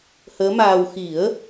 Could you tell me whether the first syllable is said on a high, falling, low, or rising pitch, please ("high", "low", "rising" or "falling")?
rising